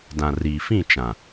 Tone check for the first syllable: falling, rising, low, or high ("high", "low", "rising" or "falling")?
low